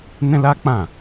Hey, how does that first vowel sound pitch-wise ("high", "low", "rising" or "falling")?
high